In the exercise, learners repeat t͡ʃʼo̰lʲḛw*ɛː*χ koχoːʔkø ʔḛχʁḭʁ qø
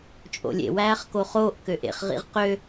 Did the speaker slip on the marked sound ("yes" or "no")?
yes